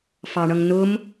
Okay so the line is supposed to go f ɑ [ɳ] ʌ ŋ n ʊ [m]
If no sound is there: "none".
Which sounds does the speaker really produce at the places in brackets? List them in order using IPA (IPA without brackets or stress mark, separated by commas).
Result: ɳ, m